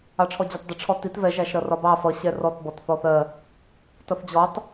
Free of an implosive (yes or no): yes